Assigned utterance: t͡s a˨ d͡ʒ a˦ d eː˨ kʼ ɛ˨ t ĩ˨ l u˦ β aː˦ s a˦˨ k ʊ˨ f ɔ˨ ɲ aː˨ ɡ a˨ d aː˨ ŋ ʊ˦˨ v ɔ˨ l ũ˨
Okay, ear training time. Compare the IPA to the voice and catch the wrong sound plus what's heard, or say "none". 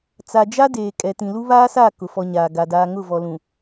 none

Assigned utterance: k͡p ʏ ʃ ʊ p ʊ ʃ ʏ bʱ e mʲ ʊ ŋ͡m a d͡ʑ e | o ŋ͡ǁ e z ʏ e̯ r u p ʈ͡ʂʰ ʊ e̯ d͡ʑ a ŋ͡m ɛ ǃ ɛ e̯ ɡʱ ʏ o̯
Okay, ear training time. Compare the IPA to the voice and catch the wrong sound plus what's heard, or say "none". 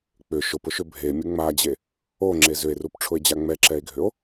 ǃ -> ǁ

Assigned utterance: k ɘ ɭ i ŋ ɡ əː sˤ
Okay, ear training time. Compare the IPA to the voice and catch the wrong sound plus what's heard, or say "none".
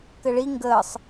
none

